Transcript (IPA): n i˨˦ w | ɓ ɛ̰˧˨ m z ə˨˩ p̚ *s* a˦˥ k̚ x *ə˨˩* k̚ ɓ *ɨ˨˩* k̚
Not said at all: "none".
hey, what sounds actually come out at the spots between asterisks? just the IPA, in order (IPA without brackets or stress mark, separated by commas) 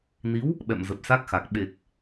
s, a˨˩, e˨˩